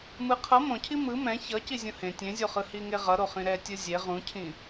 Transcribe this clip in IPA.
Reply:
m ɯ qʰ ʌ m õ cʰ i m ɯ m ɛ̃ ç ʌ c i zʲ ũ h ẽ tʲ ẽ zʲ o χ ɯ h i ŋ e ʁ ʌ ɾ o χ ĩ ɾ ɛ tʲ ɯ zʲ e ʁ ũ cʰ ĩ

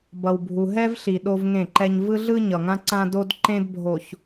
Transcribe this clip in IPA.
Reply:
b ʌ˨ w bʱ u˨ ɦ ɛ˦ v ɬ i˨ ɗ o˦ v ŋ ẽ˦˨ ǃ ɛ˦ ɲ v ɯ˦ ɮ ɯ˦ ɲ ʌ˨ ŋ ã˦ ǀ ã˦ d o˦ d ǃ ẽ˦ d bʱ o˨ ç

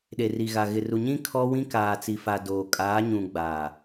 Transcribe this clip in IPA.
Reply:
ɗ e˨ r i˨ ɣ a˨ ɣ ɪ˨ r u˨ ɲ ĩ˦ kʰ ɔ˦ w ĩ˦ k aː˨ t͡s i˨ f a˨ d oː˨ kʼ aː˨˦ ɲ ũ˨ ɡ͡b aː˨

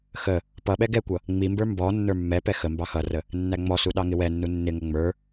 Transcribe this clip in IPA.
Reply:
x ə | p ʌ ɓ ɛ ɡ ɛ kʷ ʌ | ŋ͡m i m b ə˞ m b ɔ nː ə˞ mː ɛ p ɛ x ə m b ɑ x ʌ r ə | nː æ ŋ͡m ɔ s u ɗ ɑ ŋ ɪ w ɛ nː u nː ɪ ŋ ə ŋ͡m ə˞

